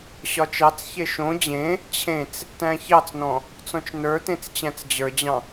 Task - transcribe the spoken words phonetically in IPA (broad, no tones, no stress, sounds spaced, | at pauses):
ɕ ɒ t͡ʃ ɑ t͡s ç e ʃ õ d͡ʑ ẽ | t͡ɕʰ ẽ t͡s | t æ̃ ç ɑ t͡s n ɔ̃ | t͡s ɔ̃ t͡ʃ n ə˞ t ẽ t͡s t͡ɕ æ̃ t͡s d͡ʑ ə˞ d͡ʑ ɑ̃